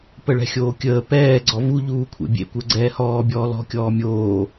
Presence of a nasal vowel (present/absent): absent